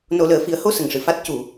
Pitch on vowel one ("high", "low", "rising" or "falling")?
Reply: low